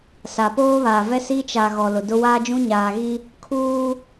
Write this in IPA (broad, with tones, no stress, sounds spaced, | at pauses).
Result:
s a˨ p oː˦ β aː˨ v ɛ˦ s i˦ t͡ʃ a˨ ɣ ɔ˨ l ʊ˨ d ʊ˦ w aː˦ d͡ʒ ũ˦ ɲ aː˨ ɣ i˦ | kʰ uː˦